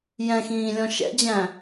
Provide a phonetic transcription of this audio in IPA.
j ɛ̃ x ĩː lʲ ɔ̃ ʃ ɛ̰ d͡ʑ æ̃

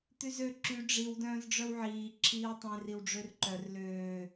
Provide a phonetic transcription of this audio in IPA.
t̪ y z ø ǁ y ɖ͡ʐ i w d œ̃ː z ɖ͡ʐ œ w ʕ iː ǁʰ iː w tˤ ẽ r i w ɖ͡ʐ ø r ǃ œ r l øː

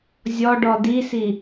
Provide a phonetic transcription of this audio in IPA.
zʲ ɔ ɖ ɔ d i s i

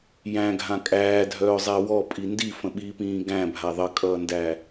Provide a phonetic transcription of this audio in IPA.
j æ̃ ɡʱ ã kʼ æː dʱ œː zˤ æ w ɔ pʼ i n d i f ə̃ ɓ iː p ĩː ɡ æ̃ bʱ a ðˤ ə kʼ ʌː n d æ

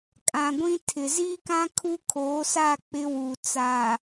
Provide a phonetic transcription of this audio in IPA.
kʼ ã˨ ɡʷ ĩ˦ tʰ ɪ˨ z iː˦ k ã˦ kʰ u˦ kʰ oː˨˦ s a˦˨ k͡p ɪ˦ w u˨ t͡s a˨

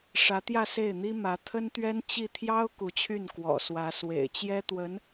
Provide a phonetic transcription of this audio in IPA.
ʂ ä˧˥ t̪ j ä˥˧ s e˥˩ ɪ̯ n̪ i˥ m ä˧˥ t̪ʰ ə˥ n t̪ ɥ ɛ˥ n t͡ɕ i˥˩ t̪ʰ j ɑ˥ ʊ̯ k u˧˥ t͡ɕʰ y˥˩ n k w ɔ̰˨˩ s w ä˧˥ s w ḛ˨˩ ɪ̯ t͡ɕ j ɛ˥ t̪ w ə˧˥ n

